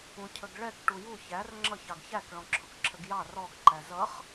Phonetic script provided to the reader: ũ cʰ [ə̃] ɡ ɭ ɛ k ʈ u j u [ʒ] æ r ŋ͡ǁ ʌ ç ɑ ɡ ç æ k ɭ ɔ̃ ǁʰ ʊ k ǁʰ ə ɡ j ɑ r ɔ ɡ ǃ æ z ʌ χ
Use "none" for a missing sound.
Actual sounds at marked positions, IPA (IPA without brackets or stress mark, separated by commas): ə, ç